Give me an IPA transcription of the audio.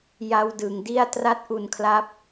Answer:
j a˦˥ w d ɯ˩˦ ŋ d i˥˩ a̯ t r a˦˥ t̚ ʔ u˧ n kʰ l a˦˥ p̚

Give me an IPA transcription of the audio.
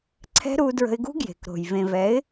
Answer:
ǀʰ ɛ̤˦ ɾ u˧ d ɹ ə̤˧ ɪ̯ ɡ ṳ˦ ɡ j e̤˨ k ɾ o̤˨ j v ẽ˨ v ɛ˨˦ ɪ̯

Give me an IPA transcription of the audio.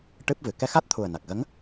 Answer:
ʈ ɨ˦˥ p̚ v ɨ˨˩ k ɛ˧ x a˦˥ t̚ t̪ʰ u˨˩ ə̯ n a˨˩ k̚ ɣ ə˧˥ ŋ

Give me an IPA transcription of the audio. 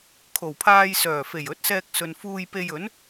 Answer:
kʰ o˨˩ w pʰ aː˧ j s œː˨˩ f e˨˩ j ɵ˨˥ t̚ s ɛː˧ k̚ s ɵ˨ n f uː˧ j p e˧ j ɵ˨˥ n

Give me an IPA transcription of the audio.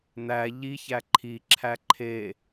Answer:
n̪ æ ʎ i ç æ ǃʰ i ǁʰ æ ǃʰ e

